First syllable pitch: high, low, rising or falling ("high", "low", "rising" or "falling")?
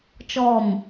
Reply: falling